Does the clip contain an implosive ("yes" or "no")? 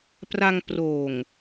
no